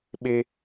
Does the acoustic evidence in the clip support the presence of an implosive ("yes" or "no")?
yes